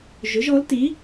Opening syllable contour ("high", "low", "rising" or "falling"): rising